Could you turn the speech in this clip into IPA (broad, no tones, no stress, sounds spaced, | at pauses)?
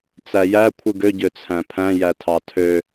t͡s æ j æ kʷʰ ɯ ɡ ø ɟ ø t͡sʰ æ̃ pʰ æ̃ j æ tʰ ɑ tʰ ø